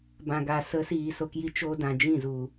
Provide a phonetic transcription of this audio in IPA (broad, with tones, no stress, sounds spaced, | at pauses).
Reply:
b ã˨ ɡ a˨ s ə˨˦ s iː˨ s o˧ k j i˧ t͡ʃ o˧ d ã˨ d͡ʒ ĩ˦˨ z u˨